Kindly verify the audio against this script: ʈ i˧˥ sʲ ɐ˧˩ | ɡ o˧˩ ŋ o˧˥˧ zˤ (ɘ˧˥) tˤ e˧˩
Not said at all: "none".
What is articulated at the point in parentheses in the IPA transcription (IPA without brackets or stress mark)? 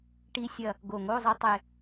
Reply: ɘ˧˥